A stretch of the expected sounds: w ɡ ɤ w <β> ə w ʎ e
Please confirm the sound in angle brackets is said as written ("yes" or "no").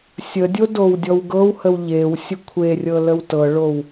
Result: no